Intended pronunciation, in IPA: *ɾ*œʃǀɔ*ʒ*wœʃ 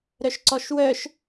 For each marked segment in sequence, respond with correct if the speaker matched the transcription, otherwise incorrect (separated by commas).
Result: correct, incorrect